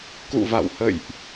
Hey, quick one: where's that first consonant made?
velum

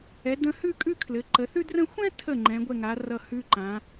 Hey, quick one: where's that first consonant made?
tongue tip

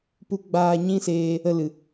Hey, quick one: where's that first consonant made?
lips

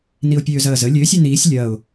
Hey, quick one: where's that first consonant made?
tongue tip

